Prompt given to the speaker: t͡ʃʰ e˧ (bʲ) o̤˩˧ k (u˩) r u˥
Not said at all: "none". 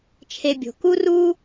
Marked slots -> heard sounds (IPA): bʲ, u˥

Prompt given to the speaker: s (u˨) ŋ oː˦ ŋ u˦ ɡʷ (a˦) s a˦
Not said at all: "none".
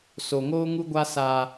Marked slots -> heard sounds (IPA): o˨, a˦

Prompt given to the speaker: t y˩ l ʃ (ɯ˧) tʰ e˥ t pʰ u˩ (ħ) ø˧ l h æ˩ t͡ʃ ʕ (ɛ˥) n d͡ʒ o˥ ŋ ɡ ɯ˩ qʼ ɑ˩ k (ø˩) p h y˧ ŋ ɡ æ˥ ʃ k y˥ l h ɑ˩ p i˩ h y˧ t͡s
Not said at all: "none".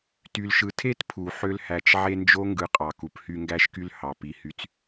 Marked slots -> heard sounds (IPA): ɯ˩, ħ, e˥, u˩

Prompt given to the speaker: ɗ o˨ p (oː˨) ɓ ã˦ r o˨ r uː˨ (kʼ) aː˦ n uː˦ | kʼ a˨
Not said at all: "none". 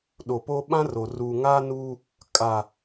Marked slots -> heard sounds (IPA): oː˦, ŋ

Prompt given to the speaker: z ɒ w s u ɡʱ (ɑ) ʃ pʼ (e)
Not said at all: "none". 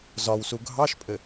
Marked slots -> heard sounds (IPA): ɑ, ɘ

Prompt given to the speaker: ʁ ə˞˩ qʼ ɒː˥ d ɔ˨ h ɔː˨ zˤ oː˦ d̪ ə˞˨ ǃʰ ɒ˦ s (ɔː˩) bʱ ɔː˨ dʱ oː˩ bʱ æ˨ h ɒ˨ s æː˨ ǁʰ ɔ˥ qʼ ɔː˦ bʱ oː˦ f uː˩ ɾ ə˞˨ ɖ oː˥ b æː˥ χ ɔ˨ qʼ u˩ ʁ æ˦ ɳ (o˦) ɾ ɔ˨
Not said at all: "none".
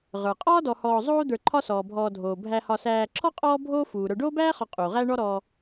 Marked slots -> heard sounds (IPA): ɔː˩, ɔ˦

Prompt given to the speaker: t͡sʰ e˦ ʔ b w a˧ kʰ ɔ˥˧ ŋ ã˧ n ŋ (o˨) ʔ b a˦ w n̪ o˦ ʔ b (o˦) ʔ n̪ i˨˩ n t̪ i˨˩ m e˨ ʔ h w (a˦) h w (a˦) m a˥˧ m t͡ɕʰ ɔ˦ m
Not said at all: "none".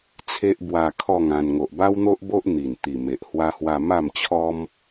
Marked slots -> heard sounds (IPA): o˨, o˦, a˦, a˧

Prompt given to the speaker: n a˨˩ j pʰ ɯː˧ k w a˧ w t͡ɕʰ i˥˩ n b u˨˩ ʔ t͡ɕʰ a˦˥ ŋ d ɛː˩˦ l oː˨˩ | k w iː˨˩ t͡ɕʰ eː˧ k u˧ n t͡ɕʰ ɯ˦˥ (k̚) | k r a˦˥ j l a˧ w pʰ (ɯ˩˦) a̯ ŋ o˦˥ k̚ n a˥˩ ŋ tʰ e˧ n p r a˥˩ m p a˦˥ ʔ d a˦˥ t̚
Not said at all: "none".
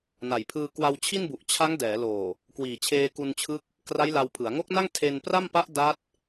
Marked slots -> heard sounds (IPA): k̚, ɯ˩˦

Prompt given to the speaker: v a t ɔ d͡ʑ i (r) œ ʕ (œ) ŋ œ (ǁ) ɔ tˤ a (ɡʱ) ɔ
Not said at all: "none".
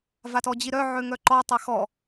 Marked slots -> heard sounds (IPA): ɾ, ø, ǃ, x

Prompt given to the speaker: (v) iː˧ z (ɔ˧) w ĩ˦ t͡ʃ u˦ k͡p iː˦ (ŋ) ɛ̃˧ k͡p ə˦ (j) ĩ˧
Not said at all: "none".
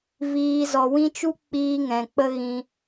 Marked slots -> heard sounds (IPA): v, ɔ˧, ŋ, ɣ

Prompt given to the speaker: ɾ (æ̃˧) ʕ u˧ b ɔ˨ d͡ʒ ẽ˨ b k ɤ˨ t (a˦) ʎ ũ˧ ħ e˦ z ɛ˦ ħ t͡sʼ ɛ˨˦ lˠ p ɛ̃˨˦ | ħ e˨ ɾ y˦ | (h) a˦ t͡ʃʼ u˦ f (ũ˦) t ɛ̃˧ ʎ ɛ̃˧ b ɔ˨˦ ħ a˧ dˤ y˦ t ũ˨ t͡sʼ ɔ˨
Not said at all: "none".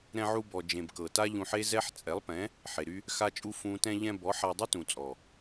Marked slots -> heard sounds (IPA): ɛ̃˧, a˦, x, ũ˦

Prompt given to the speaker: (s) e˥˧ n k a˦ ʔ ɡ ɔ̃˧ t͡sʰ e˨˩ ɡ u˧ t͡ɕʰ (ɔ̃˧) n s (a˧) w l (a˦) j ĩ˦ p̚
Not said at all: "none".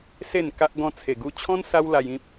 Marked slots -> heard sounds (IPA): s, ɔ̃˦, a˦, a˧

